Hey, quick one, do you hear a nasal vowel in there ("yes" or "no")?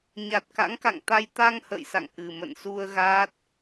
no